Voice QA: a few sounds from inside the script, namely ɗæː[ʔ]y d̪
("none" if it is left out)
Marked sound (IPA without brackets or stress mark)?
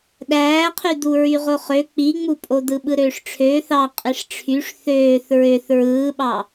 qʰ